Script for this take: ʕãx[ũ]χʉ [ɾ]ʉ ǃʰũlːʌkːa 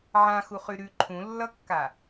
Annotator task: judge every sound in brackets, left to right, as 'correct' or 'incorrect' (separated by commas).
incorrect, correct